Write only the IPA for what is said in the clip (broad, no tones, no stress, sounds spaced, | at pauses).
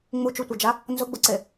ŋ͡m u t͡ʃ u tʷ ɛ d͡ʒ a | n z ʊ ɡ͡b ʊ ǀ e